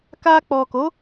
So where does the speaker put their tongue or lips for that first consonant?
velum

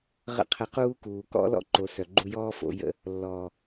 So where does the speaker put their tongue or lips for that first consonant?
uvula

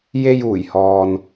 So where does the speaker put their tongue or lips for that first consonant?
palate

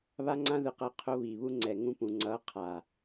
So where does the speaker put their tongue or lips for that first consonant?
lips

